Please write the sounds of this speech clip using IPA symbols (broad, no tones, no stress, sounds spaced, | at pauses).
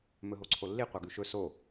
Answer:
m ɵ ɦ o ǀʰ o lː i qʷ ɑ ɡ ʉ ʃ ɵ s o